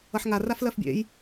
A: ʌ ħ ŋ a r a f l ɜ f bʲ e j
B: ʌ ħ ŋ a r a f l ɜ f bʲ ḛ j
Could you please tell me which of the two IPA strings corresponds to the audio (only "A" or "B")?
B